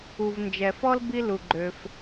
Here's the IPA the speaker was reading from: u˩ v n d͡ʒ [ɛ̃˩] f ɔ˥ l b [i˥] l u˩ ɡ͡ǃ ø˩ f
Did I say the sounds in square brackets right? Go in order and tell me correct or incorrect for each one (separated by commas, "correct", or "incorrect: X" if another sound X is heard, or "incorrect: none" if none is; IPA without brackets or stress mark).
incorrect: ɛ˩, correct